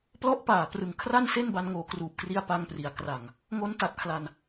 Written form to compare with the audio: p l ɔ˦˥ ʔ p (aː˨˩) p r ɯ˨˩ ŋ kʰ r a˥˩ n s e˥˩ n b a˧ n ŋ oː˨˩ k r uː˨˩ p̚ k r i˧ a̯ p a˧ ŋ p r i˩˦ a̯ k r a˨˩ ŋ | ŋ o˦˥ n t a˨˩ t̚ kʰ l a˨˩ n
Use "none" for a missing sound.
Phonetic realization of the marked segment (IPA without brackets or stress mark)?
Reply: aː˨˩